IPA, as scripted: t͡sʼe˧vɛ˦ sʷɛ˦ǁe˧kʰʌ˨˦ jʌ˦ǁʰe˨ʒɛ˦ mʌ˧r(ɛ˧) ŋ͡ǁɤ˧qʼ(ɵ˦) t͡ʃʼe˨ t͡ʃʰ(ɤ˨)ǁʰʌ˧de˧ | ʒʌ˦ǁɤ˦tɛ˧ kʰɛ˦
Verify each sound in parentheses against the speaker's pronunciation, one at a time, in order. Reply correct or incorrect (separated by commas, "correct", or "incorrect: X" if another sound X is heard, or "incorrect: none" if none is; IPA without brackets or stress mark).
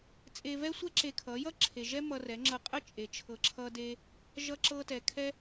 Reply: incorrect: ɛ˨˦, incorrect: ə˦, correct